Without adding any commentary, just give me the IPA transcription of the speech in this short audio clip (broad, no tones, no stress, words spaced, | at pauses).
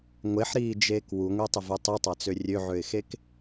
ŋʷeħɾiːd͡ʒeːk wuŋʷetˤɪvu tˤitˤat͡sø rʲøʕøɪ̯xek